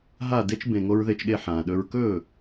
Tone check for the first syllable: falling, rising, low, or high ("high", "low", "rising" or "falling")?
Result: falling